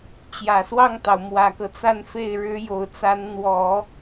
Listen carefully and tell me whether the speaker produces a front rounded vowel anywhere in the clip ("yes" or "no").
no